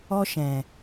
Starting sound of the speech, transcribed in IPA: ɔ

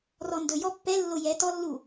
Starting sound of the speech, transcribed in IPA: r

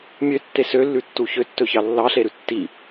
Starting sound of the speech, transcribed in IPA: mʲ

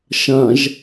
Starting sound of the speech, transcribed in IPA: ʃ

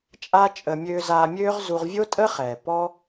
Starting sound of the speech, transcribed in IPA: t͡ʃʼ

